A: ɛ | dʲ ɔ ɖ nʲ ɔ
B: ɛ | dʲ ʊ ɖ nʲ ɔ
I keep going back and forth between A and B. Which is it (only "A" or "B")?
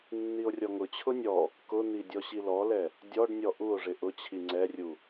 A